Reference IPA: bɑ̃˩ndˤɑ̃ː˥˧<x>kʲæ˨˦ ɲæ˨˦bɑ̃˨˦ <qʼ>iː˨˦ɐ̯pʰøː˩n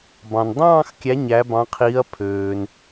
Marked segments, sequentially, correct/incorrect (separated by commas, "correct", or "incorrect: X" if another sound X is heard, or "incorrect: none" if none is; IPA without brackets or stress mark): correct, incorrect: qʰ